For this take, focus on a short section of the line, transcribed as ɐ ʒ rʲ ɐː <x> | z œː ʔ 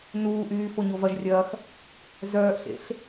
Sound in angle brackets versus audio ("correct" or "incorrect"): correct